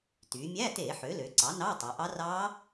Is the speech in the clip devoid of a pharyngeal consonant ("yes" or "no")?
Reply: no